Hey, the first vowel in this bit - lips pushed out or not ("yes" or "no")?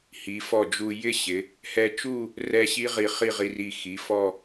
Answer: no